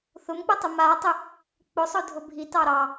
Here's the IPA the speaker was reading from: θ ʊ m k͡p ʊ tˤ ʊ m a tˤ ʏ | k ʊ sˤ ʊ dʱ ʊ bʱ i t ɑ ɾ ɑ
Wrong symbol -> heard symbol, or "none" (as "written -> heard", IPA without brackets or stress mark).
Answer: k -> k͡p